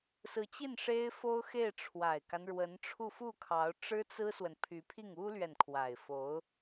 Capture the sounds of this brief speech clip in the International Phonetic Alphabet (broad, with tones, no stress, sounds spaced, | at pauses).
s ɹ̩˧˥ t͡ɕ i˥˩ n ʂ e˥ ɪ̯ f o˥ ʊ̯ x e˥˩ ɪ̯ ʈ͡ʂʰ w a˨˩ ɪ̯ k a˦ n ɻ w ə˧˥ n ʈ͡ʂʰ u˥˧ f u˥˩ kʰ ɑ˧˥ ʊ̯ ʈ͡ʂ ɻ̩˥ t͡s ɹ̩˥ s w ə˨ n pʰ y˧˥ pʰ i˥˩ ŋ u˥ l ɥ ɛ˨ n kʰ w a˨˩ ɪ̯ f o˧˥ ʊ̯